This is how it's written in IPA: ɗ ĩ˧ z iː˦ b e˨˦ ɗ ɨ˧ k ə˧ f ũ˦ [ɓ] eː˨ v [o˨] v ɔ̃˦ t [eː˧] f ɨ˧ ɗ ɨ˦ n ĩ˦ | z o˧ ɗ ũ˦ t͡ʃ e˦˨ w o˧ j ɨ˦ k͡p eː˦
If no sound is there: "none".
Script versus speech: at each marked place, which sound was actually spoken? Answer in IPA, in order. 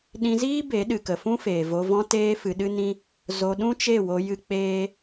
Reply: f, o˧, eː˦

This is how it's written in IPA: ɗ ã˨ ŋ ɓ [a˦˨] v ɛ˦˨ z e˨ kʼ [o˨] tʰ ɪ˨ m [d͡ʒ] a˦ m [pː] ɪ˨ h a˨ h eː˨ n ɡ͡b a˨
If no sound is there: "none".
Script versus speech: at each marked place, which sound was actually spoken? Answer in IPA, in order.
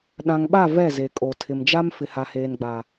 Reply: a˦˨, o˨, d͡ʒ, f

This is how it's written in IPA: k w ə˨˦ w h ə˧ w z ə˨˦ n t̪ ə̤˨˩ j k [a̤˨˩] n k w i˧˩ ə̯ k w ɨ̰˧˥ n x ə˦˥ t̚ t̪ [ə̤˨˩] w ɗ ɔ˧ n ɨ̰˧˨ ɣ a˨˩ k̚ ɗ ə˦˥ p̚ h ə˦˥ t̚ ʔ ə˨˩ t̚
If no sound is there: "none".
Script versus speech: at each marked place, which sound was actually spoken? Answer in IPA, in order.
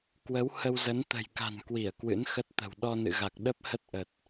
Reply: a̤˨˩, ə̤˨˩

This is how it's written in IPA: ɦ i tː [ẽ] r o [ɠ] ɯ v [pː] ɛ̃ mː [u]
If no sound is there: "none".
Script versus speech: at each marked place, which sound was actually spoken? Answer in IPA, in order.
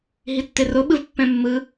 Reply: e, ɓ, pː, ɯ

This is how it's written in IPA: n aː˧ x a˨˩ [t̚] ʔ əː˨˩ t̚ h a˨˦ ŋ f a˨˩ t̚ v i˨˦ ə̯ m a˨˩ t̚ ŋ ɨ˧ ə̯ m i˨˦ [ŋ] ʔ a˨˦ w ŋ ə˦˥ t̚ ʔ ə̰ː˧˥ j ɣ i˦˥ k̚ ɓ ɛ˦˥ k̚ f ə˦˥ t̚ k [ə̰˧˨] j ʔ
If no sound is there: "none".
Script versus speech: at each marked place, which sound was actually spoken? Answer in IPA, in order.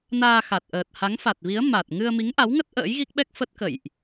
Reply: t̚, ŋ, ə̰˧˨

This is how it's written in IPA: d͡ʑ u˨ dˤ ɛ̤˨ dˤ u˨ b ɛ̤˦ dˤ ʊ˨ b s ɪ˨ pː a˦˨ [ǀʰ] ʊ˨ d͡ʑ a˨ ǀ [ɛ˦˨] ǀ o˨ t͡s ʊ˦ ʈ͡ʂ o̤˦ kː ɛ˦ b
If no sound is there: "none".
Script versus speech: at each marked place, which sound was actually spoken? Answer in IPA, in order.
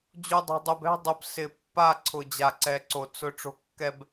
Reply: ǀʰ, ɛ˨

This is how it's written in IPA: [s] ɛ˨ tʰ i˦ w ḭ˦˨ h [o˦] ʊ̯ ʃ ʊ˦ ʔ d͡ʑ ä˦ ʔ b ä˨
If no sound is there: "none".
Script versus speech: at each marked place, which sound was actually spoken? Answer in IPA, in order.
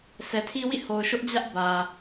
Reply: s, o˨

